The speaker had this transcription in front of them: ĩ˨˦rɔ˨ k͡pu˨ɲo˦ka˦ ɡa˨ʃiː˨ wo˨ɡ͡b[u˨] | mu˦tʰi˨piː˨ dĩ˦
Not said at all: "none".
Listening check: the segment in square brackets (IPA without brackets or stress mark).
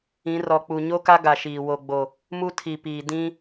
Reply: o˨